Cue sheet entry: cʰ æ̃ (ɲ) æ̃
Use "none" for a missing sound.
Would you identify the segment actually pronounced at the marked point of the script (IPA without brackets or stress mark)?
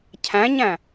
ɲ